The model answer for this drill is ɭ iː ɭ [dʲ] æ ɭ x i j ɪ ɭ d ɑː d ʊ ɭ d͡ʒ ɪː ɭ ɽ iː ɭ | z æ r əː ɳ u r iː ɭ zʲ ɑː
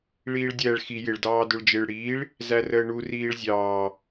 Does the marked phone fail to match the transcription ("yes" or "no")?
no